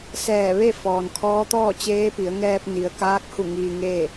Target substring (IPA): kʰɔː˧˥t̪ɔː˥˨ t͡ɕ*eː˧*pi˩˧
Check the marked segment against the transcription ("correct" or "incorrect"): incorrect